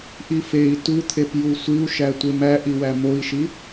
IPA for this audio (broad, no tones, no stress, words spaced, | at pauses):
ʔifei̯ tut̪ʰep jusʷiu̯ʃætʷem æʔiwæ moi̯ʃi